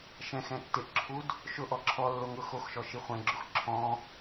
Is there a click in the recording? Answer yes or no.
yes